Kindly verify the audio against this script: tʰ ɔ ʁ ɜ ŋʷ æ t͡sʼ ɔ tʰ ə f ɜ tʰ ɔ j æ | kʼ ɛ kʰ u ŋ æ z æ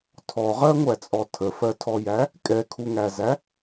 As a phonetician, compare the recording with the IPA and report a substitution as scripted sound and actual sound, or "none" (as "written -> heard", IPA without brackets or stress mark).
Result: none